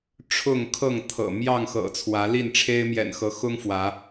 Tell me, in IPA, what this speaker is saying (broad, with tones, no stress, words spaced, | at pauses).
ʈ͡ʂʰʊ˥˨ŋkʰɤ˥˨ŋt̪ʰɤ̰˨˩ mjɑ˥˨ŋxɤ̰˨˩ t͡sʰwä˨˦li˥˨nʈ͡ʂʰe˦ɪ̯ mjɛ̰˨˩nxɤ˨˦xʊ˦ŋ fwä˨˦